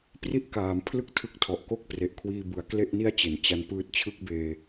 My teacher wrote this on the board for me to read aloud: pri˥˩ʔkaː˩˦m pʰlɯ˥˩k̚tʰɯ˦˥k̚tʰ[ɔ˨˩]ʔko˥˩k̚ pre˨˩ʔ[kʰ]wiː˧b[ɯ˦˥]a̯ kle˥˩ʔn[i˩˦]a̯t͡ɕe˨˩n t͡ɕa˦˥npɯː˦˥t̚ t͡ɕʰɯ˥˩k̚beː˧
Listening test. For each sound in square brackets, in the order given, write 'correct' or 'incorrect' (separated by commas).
correct, correct, incorrect, incorrect